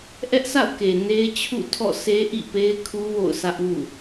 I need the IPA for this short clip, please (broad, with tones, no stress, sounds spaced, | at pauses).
ʔ ɛ˦ ʔ s a̰˦˨ ʊ̯ k e˨ n e˦ ɪ̯ t͡ɕʰ ṵ˦˨ tʰ ɔ̰˦˨ s e˦ ʔ ḭ˦˨ p e˦ ɪ̯ kʰ u˦ w o̰˦˨ ʊ̯ sʰ ä˦ ʔ w ṵ˦˨